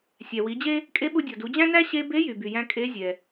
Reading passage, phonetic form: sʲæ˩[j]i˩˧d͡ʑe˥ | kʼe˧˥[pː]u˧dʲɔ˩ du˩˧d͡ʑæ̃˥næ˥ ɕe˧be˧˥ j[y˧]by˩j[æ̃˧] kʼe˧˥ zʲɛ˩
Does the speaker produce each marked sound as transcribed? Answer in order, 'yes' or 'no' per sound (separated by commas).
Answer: no, no, no, yes